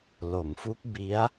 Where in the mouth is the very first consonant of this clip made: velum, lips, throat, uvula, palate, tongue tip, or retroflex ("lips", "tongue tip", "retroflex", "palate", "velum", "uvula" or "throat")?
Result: tongue tip